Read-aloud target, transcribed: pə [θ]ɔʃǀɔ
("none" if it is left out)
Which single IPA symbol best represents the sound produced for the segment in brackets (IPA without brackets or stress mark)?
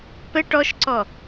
ʈ